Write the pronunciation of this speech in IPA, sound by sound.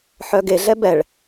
ħœɡeɮɛ bɛɭ

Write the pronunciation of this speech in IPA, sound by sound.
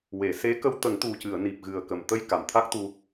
we˨˩˨se˧˥ kə˧wt̪ə˨˩˦ŋt̪u˨˩cɨ˨˩˨ə̯ ni˨˩p̚ɣɨ˨˩ə̯kə˨˩mt̪ə˧j ka˨˩mt̪ʰa˦˥k̚t̪u˧

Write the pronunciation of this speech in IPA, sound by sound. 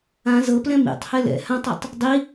ã zɤplɛ̃ mḭtˤhɛ lɛ̰ hãtˤatˤ | dˤi

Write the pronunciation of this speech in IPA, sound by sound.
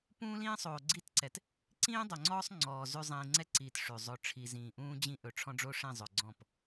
pũː˦lĩː˦sˤoː˨ ɡ͡ǀi˦tǀɛ˨t | ǀĩː˦dˤœ˨ŋ͡ǀɔː˦sˤ ŋ͡ǀɔː˨ zʉ˨ zˤĩː˨ŋ͡ǀɛ˦ǀiː˨t ʂʉ˨zˤɵ˦˨ ʈ͡ʂʰi˨zĩː˨ʔũː˦ d͡ʑĩ˦ ʔɵ˨ʈ͡ʂʰɔ̃˦ɖ͡ʐo˦ʂĩ˦˨ zˤɵ˨ɡ͡ǀɔ̃˦˨p

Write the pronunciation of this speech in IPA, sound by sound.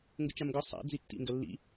ŋɡʊt͡ʃamɡɔ sˤa̰ d͡zitːḭ ŋɡɐlːḭ

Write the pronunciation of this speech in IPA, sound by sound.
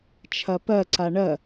t͡ʃʰɐpɜ ǀaɳɜ

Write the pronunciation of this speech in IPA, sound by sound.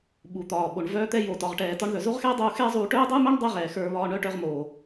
ɓu˩t̪ɒː˩ɓo˩ɳ vœː˧t̪ɛ˧jo˩ tɒ˩ʁʈɛː˩ tɒ˧ɳðœ˩zo˥ʁxɛː˥ dˤuː˧xɛː˥zˤuː˧ ʈœː˥dˤuː˥mœː˥ɳ dˤɛ˥ʁɛː˩ xə˞˧βɒː˧ɳœ˥ ʈœ˧ʁmoː˩

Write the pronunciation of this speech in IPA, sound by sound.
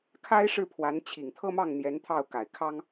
kʰa˥ɪ̯ʂɻ̩˥˩ pʰwa˧˥n t͡ɕʰi˨˩ŋt̪ʰɤ˥mɑ˥˩ŋn̪jɛ˧˥n t̪ʰɑ˥˩ʊ̯ ka˨˩ɪ̯kʰɑ˥ŋ

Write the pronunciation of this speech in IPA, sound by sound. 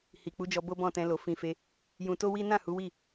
hi˨k͡pu˨˦d͡ʒɔ˧ bo˦bɔ̃˦˨tɛ̃˧lo˨ fĩ˨fe˧ | jũ˧to˦wi˦ nã˦˨hu˨˦wi˦˨

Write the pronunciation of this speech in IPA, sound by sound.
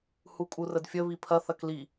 hukʼurədfʲə βipʰɐ θɐkli

